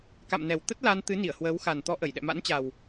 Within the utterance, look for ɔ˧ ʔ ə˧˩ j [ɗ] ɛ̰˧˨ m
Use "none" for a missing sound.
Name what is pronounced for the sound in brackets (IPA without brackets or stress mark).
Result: ɗ